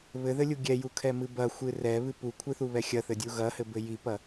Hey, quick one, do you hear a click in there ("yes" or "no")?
no